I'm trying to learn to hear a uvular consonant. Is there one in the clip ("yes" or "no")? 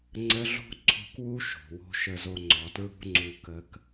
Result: no